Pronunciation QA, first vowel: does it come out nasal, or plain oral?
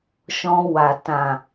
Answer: nasal